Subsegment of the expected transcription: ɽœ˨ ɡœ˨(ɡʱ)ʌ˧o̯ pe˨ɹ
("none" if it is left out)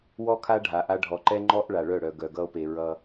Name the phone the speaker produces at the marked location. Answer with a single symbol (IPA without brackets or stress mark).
ɡ